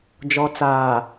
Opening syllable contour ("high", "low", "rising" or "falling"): low